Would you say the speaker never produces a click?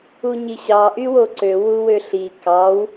no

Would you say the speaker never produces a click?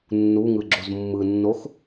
no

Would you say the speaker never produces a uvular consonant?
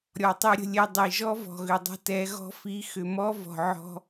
yes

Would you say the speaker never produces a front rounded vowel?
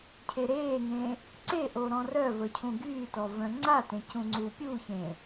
no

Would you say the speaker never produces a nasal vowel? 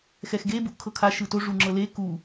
yes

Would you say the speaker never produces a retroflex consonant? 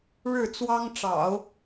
no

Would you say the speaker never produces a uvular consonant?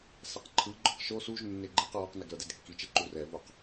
no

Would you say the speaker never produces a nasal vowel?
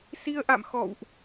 yes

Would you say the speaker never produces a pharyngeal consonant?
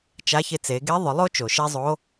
yes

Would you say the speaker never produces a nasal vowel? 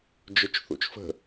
yes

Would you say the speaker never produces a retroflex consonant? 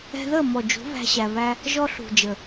yes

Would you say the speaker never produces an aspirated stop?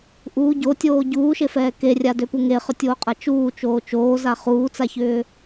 yes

